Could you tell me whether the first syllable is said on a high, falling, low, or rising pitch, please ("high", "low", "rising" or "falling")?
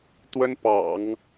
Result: high